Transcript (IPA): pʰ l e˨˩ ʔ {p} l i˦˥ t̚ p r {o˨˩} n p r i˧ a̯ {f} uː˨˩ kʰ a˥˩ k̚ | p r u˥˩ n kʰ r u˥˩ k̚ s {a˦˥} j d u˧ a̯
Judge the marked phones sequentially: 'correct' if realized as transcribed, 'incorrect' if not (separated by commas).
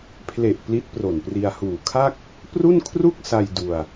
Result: correct, correct, incorrect, incorrect